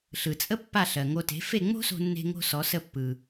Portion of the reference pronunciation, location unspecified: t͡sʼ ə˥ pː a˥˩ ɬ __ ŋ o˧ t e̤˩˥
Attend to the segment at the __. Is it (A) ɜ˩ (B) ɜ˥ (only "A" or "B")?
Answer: A